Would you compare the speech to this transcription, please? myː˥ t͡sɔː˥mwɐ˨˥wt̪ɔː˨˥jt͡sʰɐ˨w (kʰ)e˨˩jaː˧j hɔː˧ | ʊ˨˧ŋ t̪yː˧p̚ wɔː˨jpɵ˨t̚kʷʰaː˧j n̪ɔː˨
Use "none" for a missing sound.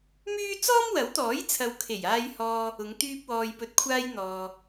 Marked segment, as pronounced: kʰ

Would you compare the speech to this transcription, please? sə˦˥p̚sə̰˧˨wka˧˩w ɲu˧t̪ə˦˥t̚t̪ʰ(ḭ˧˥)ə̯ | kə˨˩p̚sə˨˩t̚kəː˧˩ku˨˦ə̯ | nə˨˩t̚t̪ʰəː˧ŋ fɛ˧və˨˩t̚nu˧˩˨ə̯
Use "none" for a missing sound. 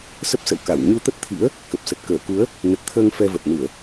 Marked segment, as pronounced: ḭ˧˥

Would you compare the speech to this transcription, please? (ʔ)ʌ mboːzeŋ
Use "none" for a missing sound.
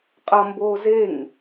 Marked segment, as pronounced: qʼ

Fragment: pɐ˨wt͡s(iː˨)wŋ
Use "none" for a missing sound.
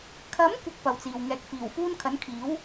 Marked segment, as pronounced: iː˨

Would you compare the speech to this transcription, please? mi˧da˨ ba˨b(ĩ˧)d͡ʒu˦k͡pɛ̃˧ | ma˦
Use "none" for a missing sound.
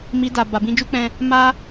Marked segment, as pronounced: ĩ˧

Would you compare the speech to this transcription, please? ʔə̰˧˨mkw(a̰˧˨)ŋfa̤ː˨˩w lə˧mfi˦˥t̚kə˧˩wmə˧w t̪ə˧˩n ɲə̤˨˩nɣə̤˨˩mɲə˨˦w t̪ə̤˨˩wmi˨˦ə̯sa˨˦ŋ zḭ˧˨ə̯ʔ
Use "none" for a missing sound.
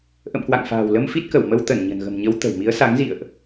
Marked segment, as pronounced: a̰˧˨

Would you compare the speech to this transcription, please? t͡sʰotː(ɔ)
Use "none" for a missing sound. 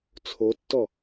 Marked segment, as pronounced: ɔ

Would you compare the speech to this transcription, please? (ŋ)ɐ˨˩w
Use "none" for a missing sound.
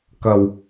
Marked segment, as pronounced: k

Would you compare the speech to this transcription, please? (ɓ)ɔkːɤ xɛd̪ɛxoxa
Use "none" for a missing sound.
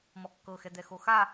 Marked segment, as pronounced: m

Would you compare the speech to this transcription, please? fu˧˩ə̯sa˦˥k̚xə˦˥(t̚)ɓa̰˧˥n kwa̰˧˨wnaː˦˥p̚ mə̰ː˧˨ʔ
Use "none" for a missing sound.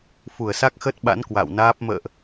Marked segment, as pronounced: t̚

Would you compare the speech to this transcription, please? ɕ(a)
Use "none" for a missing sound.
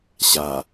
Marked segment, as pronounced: a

